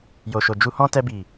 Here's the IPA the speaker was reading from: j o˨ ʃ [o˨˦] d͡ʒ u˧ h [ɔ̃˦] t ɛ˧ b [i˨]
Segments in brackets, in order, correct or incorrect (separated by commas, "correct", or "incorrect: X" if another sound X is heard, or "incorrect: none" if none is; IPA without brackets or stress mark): incorrect: o˨, correct, correct